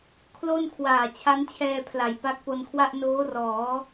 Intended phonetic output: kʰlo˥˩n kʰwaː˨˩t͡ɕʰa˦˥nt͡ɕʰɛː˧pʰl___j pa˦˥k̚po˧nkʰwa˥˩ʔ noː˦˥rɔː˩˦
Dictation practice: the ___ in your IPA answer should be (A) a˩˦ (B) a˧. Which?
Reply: A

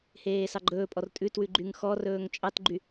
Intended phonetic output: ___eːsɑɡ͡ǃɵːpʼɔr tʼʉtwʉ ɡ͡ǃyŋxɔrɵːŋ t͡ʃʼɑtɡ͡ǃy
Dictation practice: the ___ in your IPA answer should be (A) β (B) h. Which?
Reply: B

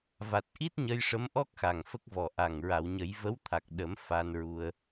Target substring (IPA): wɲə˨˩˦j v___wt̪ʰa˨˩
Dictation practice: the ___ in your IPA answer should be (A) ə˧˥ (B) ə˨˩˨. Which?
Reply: A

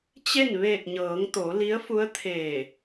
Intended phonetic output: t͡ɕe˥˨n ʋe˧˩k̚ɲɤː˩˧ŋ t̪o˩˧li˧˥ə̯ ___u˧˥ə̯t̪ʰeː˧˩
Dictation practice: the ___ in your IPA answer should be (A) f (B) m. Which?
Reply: A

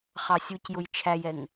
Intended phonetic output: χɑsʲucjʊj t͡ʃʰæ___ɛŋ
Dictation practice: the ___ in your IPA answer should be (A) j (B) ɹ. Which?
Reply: A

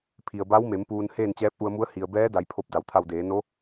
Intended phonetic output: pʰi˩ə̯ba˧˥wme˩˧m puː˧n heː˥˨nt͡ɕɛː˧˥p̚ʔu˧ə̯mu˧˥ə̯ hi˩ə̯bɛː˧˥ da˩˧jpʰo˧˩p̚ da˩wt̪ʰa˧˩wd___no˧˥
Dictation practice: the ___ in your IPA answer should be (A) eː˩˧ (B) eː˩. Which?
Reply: A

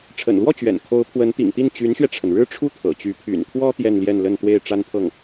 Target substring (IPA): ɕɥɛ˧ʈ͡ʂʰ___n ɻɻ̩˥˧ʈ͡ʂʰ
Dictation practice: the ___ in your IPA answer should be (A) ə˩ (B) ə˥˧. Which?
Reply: A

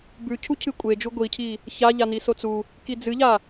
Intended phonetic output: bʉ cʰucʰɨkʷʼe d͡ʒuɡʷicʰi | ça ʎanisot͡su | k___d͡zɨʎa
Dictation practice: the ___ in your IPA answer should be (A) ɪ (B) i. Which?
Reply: B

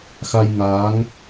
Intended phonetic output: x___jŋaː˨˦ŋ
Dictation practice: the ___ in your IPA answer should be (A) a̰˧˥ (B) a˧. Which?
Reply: B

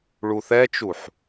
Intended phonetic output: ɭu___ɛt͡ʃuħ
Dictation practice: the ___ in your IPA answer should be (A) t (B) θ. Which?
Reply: B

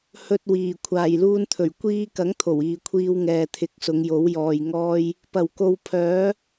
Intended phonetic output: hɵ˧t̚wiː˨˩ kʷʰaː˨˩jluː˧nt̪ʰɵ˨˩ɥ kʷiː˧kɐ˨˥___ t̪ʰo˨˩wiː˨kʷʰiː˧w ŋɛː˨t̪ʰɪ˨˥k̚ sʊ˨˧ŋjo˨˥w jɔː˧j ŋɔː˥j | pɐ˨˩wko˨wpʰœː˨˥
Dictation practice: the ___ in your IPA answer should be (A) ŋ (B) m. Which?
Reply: A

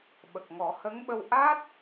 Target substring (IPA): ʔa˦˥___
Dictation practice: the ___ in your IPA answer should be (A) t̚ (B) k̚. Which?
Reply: A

